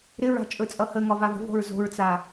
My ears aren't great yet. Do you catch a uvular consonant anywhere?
no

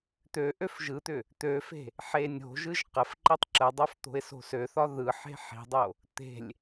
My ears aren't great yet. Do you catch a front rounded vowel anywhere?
yes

